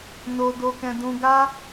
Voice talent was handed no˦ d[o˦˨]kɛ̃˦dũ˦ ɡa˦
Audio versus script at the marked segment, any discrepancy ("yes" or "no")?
yes